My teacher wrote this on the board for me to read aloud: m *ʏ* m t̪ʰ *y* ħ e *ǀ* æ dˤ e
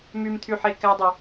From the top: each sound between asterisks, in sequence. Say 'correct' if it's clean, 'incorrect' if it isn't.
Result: incorrect, correct, incorrect

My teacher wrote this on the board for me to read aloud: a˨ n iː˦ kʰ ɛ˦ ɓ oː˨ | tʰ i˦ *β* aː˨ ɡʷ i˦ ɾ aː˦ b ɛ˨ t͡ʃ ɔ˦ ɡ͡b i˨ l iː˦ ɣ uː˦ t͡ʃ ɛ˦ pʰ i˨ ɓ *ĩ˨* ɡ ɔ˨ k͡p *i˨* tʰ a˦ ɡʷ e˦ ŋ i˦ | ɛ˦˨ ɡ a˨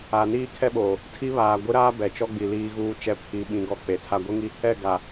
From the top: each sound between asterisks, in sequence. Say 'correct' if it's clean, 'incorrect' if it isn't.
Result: correct, correct, incorrect

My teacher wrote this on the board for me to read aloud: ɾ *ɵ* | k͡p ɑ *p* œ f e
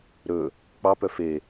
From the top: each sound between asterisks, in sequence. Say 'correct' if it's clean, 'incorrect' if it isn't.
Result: correct, correct

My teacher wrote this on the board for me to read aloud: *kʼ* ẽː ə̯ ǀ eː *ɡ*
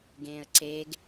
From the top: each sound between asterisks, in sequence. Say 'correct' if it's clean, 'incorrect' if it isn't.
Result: incorrect, correct

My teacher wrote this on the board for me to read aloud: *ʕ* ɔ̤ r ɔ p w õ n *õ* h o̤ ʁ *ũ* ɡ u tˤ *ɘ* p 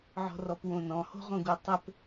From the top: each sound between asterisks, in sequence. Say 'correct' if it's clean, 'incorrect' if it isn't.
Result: correct, incorrect, incorrect, correct

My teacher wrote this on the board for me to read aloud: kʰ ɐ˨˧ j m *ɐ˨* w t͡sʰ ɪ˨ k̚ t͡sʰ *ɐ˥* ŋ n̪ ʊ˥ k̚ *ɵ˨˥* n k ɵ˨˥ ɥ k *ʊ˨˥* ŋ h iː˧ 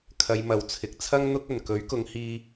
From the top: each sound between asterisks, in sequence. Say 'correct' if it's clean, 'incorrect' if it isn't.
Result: incorrect, correct, incorrect, incorrect

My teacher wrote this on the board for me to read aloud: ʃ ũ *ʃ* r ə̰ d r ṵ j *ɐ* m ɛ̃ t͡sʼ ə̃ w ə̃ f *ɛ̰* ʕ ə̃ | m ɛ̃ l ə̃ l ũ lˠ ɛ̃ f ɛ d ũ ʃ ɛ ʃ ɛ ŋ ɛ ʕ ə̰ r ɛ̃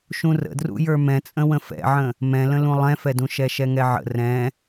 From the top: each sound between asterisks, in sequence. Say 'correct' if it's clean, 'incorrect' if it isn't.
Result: incorrect, incorrect, correct

